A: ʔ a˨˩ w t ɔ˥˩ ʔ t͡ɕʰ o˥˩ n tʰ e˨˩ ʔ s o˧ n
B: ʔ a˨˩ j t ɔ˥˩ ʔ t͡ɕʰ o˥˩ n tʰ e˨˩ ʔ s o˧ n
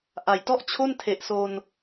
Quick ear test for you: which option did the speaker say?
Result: B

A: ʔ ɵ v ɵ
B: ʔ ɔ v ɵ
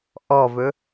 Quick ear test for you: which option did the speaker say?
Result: B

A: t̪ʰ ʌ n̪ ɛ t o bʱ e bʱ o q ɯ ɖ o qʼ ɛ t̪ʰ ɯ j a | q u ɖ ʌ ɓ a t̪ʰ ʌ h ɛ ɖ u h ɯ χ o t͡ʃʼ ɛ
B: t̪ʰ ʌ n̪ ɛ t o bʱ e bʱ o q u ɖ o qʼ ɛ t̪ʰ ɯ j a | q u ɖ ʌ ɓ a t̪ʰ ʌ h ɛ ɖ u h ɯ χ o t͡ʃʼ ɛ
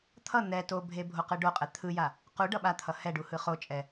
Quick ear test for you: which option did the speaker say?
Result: A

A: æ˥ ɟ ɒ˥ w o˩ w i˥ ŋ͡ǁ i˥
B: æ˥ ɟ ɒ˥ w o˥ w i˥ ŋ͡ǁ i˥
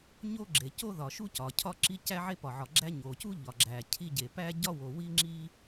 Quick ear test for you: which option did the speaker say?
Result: A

